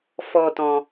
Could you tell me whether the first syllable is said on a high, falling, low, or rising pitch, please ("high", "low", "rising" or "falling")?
high